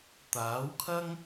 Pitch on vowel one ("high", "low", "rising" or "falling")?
rising